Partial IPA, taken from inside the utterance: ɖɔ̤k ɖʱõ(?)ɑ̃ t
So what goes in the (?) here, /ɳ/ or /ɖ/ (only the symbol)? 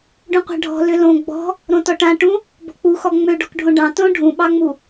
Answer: ɖ